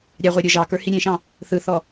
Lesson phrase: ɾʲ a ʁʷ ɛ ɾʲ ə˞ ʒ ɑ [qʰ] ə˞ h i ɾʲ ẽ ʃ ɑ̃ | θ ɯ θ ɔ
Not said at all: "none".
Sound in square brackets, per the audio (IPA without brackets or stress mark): k